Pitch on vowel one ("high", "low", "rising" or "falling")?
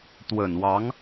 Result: low